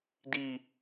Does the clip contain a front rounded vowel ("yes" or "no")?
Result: no